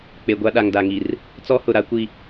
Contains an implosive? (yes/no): yes